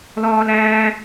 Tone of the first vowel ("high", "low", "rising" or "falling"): high